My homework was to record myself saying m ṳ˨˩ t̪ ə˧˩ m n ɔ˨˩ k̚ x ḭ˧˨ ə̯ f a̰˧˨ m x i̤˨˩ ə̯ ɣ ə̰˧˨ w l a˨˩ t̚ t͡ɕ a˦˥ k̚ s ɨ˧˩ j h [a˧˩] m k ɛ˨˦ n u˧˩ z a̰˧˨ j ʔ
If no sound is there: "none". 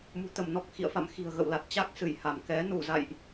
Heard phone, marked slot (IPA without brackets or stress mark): a˧˩